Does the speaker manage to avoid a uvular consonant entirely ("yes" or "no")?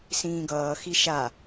yes